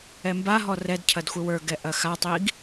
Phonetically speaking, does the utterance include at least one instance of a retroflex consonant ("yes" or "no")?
no